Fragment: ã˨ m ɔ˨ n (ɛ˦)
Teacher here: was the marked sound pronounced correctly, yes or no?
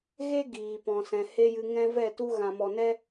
yes